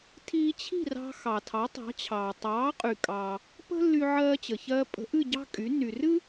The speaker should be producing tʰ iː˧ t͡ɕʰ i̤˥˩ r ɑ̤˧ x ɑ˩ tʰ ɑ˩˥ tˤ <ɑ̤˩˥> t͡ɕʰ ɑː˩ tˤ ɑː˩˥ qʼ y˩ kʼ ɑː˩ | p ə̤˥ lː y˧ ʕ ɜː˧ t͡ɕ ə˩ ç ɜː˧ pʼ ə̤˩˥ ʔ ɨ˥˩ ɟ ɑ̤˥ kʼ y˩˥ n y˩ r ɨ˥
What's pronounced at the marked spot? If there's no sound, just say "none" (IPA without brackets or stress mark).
ɑ̤˩˥